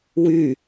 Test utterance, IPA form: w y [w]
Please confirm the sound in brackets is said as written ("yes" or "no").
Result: no